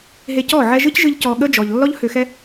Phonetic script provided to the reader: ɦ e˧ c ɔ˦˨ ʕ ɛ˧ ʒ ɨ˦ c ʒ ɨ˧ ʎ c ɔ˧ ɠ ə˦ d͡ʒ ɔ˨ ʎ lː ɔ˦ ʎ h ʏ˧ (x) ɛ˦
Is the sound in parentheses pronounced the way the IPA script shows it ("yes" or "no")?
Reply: yes